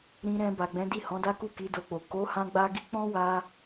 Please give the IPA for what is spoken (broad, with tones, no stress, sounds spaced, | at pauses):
ɾ ĩ˧ ɾ ɛ̃˧ b a˨ ɡ͡b ɛ̃˨˦ d i˦˨ h ɔ̃˨˦ d a˦ k u˦˨ k i˨˦ d o˧ k͡p o˨ k o˨˦ h ã˦ ɡ͡b a˦ ɡ i˦ k͡p ɔ̃˦ w a˧